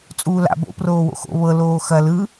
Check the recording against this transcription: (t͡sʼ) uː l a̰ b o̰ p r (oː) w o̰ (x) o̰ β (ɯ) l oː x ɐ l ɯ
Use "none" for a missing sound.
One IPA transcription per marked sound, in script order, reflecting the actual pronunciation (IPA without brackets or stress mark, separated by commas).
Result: t͡sʼ, oː, x, ɤ